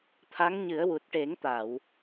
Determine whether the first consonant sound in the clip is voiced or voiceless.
voiceless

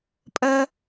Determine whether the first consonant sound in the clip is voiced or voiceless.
voiceless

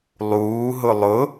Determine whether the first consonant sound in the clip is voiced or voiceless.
voiced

